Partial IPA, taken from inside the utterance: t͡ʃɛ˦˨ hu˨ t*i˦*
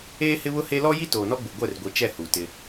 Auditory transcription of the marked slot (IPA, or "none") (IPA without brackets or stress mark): ɪ˦